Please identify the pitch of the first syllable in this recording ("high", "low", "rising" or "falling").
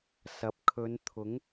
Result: rising